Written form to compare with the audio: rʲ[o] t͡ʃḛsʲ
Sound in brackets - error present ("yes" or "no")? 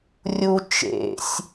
yes